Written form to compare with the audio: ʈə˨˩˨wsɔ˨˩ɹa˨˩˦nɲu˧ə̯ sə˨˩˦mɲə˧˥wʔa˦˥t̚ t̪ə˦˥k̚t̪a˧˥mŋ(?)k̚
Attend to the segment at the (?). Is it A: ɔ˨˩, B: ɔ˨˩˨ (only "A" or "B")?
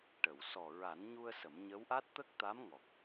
A